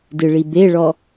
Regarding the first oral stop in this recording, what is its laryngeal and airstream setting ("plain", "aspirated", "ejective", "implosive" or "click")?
plain